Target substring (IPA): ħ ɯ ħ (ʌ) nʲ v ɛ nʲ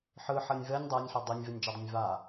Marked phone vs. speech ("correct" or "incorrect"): correct